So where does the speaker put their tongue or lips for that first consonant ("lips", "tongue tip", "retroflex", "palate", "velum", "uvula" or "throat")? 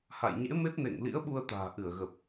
throat